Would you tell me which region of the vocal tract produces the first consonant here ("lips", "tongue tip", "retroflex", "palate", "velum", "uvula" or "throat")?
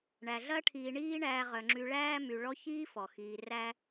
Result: retroflex